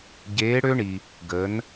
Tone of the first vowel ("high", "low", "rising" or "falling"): rising